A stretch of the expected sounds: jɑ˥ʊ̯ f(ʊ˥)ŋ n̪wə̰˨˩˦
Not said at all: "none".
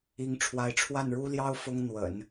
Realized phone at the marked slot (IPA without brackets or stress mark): ʊ˥